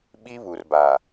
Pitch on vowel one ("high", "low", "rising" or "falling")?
high